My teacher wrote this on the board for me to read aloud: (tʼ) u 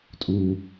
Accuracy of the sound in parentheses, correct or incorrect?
correct